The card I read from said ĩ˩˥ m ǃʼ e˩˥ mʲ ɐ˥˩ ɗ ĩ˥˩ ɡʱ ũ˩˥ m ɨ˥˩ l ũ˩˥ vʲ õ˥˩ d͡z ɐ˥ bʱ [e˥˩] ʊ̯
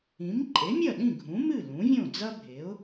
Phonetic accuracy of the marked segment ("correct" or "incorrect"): incorrect